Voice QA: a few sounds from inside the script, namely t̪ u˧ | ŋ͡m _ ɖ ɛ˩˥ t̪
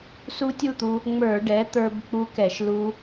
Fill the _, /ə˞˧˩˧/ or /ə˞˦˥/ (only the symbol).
ə˞˧˩˧